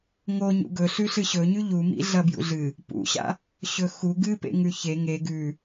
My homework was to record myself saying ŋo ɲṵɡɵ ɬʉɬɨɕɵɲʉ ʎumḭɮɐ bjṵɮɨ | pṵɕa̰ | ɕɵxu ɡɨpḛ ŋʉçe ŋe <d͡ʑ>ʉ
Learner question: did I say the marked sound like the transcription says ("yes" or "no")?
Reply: no